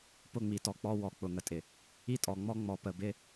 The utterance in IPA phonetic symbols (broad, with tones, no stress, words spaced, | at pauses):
pʊ˦˨ŋ͡mi˨tɔ˨k͡pɔ˦ wɔ˨ k͡pʊ˨ŋə˨tʼɪ˨ | i˦tʼɔ˨ŋ͡mɔ˦ ŋ͡mɔ˨ pə˨bɪ˦